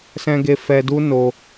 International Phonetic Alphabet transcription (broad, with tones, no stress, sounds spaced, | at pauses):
s ɛ̃˧ ɡ e˧ f ɛ˧ d u˦ n o˧